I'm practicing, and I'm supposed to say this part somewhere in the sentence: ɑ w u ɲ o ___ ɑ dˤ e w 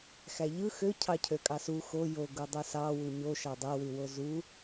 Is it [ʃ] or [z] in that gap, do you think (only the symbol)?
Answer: ʃ